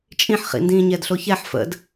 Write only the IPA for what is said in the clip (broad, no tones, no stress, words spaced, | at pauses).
t͡ʃʼĩħχḭndĩː ɲɛdɬoçɛħ fə̰d